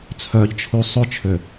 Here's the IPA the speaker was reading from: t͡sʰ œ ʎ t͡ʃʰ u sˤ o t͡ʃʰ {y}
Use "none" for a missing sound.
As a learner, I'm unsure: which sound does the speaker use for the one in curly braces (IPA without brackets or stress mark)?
ø